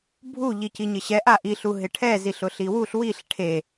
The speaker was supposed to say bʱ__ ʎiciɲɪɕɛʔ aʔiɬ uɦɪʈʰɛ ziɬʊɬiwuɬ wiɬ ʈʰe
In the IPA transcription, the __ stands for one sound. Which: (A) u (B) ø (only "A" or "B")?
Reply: A